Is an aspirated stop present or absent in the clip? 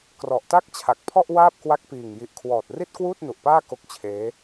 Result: present